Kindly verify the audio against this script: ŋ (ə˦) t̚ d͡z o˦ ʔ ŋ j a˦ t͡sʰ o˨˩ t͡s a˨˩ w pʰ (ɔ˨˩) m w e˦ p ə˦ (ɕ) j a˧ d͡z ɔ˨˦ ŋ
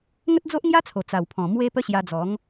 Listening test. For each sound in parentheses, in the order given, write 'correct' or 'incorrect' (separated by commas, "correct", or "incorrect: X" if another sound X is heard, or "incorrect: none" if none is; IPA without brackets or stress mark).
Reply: correct, incorrect: ɔ̃˨˩, correct